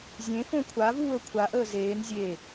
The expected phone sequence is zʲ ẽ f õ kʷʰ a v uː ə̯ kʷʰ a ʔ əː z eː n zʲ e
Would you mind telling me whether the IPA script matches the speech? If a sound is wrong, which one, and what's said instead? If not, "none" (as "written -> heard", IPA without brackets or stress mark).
none